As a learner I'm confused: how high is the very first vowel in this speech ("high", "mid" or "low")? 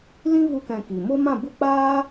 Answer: high